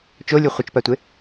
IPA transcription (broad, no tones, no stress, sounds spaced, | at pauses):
t͡ʃ o lʲ u χʷ ʌ t͡ʃ p a tʷ e